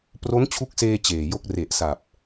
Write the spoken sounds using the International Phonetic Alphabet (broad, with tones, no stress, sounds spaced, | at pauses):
p r o˦˥ n t͡ɕʰ u˦˥ k̚ s eː˧ t͡ɕ eː˨˩ j o˦˥ k̚ r e˨˩ ʔ s a˨˩ p̚